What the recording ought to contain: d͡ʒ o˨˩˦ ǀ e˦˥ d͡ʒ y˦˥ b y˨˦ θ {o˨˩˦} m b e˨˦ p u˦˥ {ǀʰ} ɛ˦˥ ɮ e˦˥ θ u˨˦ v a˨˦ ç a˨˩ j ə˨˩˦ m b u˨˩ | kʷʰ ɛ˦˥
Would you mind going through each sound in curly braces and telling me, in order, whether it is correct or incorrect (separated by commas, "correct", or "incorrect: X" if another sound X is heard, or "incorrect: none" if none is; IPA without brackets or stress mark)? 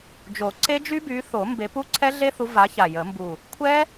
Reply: correct, correct